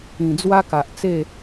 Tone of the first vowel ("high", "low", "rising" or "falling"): low